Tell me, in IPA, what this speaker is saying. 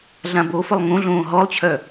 ɮ ã b o f ʊ lˠ ŋ õ ɮ õː ɦ ɔ lˠ t͡ɕʰ œ

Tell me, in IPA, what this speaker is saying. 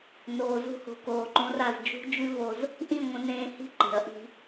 n oː˨ z ṳ˧ h o̤˨ k oː˨ ǃ õ˧ r a˦˨ z d͡ʒ ṳ˦ d͡ʒ ʉ˦ v o˧ z | ʔ ĩ˦˨ ŋʷ ə̃˧ n ẽː˧ h i̤˦ ǃ e̤˨ ɐ̯ ʔ i̤˧

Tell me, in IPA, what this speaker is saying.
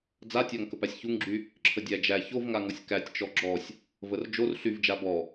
d͡z a tʲ a ŋ k ə p æ sʲ ç u ŋ ɡ͡ǁ y | ǁʰ ə dʲ æ d͡ʒ æ ç o v ŋ a ŋ ɔ sʲ k æ tʲ t͡ʃ ɔ ɡ͡ǁ ɔ sʲ | v ə r d͡ʒ o r ɬ y v d͡ʒ a b ɔ

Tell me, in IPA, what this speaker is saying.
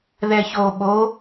ð ɛ ç o ɓ o

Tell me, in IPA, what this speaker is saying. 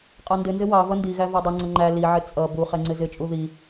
qʼ ɑ n d ɪ n z ɪ w ɑ v ʌ n d i ɣ æ v ɑ dˤ ʌ ŋ͡ǀ ʌ ŋ͡ǃ æ l i ʕ ɪ t͡sʼ ʌ b u χ ɛ ŋ͡ǀ ɪ z ɪ t͡ʃʼ u ð i

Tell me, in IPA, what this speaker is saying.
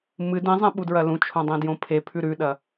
m ɨ d ĩ zˤ ẽ ɓ u d ɹ ɐ l ũ t͡ʃʰ õ dˤ ĩ d j õ pʰ e pʰ ʉ ɾ ʉ ɗ ɐ

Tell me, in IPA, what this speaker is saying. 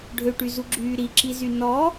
ɖʱ ø ʈ y z u ɡ͡ǁ yː ɾ i ǁ i z y n ɔ

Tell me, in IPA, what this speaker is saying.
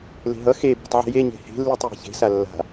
l e̤ ɦ ʌ x e b e̤ tˤ ʕ i̤ j e ɲ e̤ h e̤ lː i tˤ j e̤ ç e̤ s a lː a̤

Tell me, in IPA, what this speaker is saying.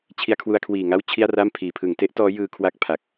t͡ɕʰ i˧ a̯ kʰ w u˧ a̯ kʰ w iː˨˩ ŋ a˥˩ w t͡ɕʰ i˥˩ a̯ r a˥˩ m pʰ iː˩˦ pʰ ɯ˩˦ ŋ t e˦˥ ʔ t ɔː˦˥ j ɯː˧ kʰ w a˥˩ k̚ pʰ a˨˩ k̚

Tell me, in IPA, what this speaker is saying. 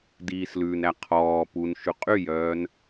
d iː s l ʉː n ɾ æ qʰ ɔː p u n ʃ ʉ qʼ y j œː n

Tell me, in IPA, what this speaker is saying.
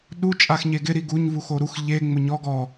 ɗ u t͡ʃʼ a x ɲ e ɡ ɪ ɾ i ɡ u ɲ v u x o ɾ u x ʎ e ŋ͡m ʊ ɲ ɔ ɡ ɔ

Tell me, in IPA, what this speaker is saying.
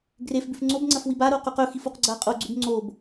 ɡ r e f b ʉ f ŋ͡ǀ o b ŋ͡ǀ ɐ f w i b a ɾ o q ʉ q ɵ x i f u q ɡ͡ǀ a qʼ o ɡ͡ǀ ʉ b ŋ͡ǀ o b

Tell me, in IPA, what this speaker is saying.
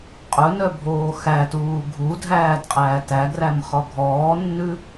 qʼ ɵ n œ bʱ oː x æ t uː ɡʱ u dʱ æː d qʼ æː t æ ɡ r æ m χ ɔ ɡʱ ɔː nː ʉ

